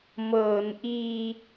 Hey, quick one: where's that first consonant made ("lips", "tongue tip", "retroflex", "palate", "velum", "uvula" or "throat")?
lips